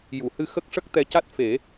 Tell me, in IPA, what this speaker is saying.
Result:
ju˨˩˨hɨ˧ xə˦˥k̚ʂə˦˥k̚ t̪ɛ˧˥ca˦˥t̚ fe˨˩˦

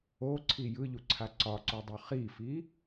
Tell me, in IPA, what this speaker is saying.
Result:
oǀʰi jɯʎuǀʰa ǀɒǀodˤo χifi

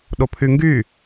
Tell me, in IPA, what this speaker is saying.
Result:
ɗopʰyŋɡy

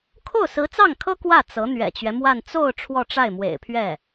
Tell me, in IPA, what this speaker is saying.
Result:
kʰo˥˩ʊ̯sɹ̩˧˥t͡sɑ˥˩ŋkʰɤ˥ kwä˥˩ t͡sɤ˧˥ n̪ɥɛ̰˨˩t͡ɕɥɛ˦mwa˥˧n t͡so˥˧ʊ̯ ʈ͡ʂʰwɔ˥˧ʈ͡ʂa˥˩ɪ̯mwḛ˨˩ɪ̯pʰɥɛ˥˩

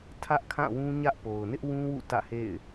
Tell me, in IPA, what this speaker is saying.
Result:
tʰä˦ʔkʰã˦˨wũ˦ɲä˦ʔ po˨ʊ̯ nɪ˦ʔwũ˦wṵ˦˨ tä̰˦˨hḛ˦˨ɪ̯

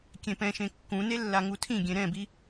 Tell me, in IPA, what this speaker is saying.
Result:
kʲẽpɛ̃ʃẽ kːũne lːaŋutʰĩɡʲẽ ɾɛ̃bi

